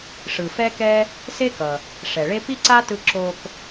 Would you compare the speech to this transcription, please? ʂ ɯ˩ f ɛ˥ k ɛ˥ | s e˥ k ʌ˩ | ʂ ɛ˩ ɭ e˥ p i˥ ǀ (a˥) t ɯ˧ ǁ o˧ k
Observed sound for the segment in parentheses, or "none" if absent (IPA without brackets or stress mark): a˥